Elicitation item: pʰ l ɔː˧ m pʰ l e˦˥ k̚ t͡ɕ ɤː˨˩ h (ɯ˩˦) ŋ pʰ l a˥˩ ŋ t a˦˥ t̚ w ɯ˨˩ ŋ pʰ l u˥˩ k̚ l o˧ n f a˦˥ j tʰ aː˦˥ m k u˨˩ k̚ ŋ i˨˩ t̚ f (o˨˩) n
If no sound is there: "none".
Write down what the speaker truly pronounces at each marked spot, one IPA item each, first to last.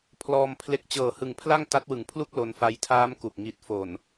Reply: ɯ˨˩, o˨˩

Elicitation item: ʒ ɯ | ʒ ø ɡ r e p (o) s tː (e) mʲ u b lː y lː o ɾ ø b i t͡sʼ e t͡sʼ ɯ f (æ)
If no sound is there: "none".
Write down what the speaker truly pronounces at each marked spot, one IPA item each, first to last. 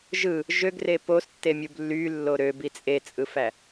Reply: o, e, æ

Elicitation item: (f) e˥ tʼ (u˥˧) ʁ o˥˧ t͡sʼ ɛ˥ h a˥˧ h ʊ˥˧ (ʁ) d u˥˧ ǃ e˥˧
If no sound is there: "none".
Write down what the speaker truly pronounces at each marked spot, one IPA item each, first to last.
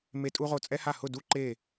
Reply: m, u˥, none

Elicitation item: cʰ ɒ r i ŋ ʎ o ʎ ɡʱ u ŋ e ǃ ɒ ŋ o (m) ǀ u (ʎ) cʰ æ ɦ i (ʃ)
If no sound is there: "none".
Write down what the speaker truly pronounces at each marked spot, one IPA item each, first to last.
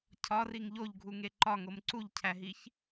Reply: m, ʎ, ç

